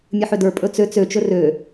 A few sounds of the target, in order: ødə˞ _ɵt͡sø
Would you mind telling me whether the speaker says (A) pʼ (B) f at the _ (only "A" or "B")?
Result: A